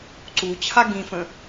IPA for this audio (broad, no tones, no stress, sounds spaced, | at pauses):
ǀ u t͡ɕʰ a ɡ ĩ f ə̃